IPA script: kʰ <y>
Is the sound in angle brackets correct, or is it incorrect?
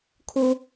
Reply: incorrect